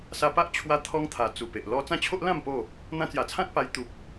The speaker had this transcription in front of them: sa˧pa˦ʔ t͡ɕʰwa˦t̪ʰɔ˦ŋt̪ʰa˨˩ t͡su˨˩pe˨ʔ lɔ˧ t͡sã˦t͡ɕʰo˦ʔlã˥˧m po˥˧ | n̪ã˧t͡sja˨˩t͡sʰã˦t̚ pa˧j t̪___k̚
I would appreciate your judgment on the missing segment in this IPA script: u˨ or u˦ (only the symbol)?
u˨